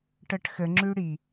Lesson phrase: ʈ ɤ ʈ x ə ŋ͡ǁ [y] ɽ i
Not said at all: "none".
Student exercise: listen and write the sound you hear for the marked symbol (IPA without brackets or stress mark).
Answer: y